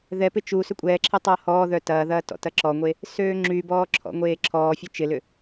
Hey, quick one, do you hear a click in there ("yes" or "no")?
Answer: yes